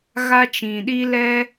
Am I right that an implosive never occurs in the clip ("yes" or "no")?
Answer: no